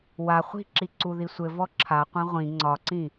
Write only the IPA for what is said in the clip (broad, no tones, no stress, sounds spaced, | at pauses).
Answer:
w a χʷ i̤ ǁ i ǀ u ð i sʷ ɘ v ɔ ǁʰ a qʷ ɛ̃ ʁʷ ĩ ŋ͡ǀ ɒ ǀ ĩ